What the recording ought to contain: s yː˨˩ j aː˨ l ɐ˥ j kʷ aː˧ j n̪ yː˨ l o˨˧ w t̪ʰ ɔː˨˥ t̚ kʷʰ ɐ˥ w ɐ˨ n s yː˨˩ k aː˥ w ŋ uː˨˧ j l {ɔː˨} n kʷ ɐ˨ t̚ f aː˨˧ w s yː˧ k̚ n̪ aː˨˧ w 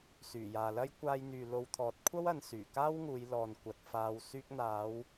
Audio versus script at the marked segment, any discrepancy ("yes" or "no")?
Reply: no